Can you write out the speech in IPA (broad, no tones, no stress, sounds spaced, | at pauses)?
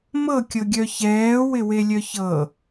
m ɤ kʲ ɤ ɡʲ œ ç ɛː w ɪ w e lʲ œ ç ɤ